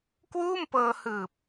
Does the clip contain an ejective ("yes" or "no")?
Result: no